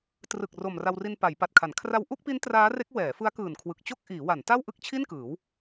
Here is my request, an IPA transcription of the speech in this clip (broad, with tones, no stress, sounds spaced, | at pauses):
t r ɯ˨˩ k̚ r o˨˩ m r a˧ w r i˧ n p a˩˦ j p a˨˩ t̚ kʰ a˩˦ n kʰ r a˧ w ʔ u˥˩ k̚ p i˦˥ n t r aː˦˥ r e˦˥ k̚ w ɛː˩˦ f ɯ˦˥ a̯ k ɯː˨˩ n kʰ w ɯ˨˩ k̚ t͡ɕ o˥˩ k̚ ʔ iː˩˦ w a˩˦ n t a˥˩ w ʔ ɯ˥˩ k̚ t͡ɕʰ i˥˩ n k ɯː˩˦ w